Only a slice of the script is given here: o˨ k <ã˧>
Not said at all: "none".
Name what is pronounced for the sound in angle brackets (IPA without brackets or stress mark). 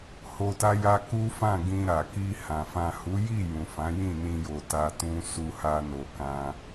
ã˧